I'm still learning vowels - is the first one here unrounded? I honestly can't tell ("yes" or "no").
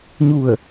no